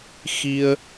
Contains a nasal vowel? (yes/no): no